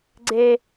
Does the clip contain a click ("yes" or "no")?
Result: yes